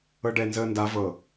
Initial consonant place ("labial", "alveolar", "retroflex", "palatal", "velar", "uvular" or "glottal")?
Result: retroflex